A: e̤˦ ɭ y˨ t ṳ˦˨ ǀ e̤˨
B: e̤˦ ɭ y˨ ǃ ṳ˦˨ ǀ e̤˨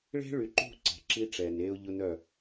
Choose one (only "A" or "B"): B